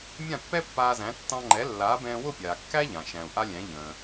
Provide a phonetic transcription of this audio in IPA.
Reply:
mʲ ã˥˩ pː ɛ˥ pː aː˧ z æ̃˩˥ tː ɑ̃˧ ŋ͡ǃ ɛ˩˥ lː aː˩˥ b ɛ̃ː˧ w ʊ˥˩ pʲ aː˩ kː æ˥ ʎ ã˩ ʃ æ̃˩ u̯ ʔ a˧ lʲ æ̃˩˥ ʎ ə̃ː˩

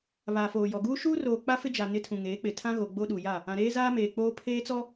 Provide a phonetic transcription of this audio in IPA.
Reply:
β aː˨ f oː˨ j ɔ˨ ɡ uː˦ ʃ uː˦ r oː˨ k͡p a˦ f ɪ˦ d͡ʒ a˨ n ɪ˦ tʰ ũ˨ ŋ eː˨˦ k͡p ɪ˨ tʰ ã˦ ɣ o˨ ɡ͡b o˦ ɗ u˨ j a˦˨ | ã˨ ɾ eː˦ z aː˦ m eː˨ k͡p oː˦ pʰ eː˦ t͡s ɔ˦

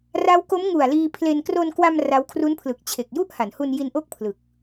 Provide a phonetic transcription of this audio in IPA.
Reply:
r a˦˥ w k o˦˥ m ŋ u˨˩ a̯ l iː˧ pʰ l e˧ n k r o˧ n k w a˧ m r a˦˥ w kʰ r u˦˥ n pʰ l ɯ˨˩ k̚ t͡ɕʰ e˨˩ k̚ j u˥˩ ʔ h a˩˦ n h u˧ n j i˧ n ʔ o˥˩ k̚ pʰ l ɯ˨˩ k̚

